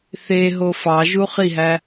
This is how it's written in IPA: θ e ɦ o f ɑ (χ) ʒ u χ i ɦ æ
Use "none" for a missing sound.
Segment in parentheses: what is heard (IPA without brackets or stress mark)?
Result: none